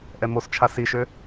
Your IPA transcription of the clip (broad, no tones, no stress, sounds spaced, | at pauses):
ʔ ɛ m o s t͡ʃʰ a s i ʃ ø